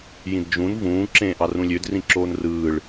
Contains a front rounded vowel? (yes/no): yes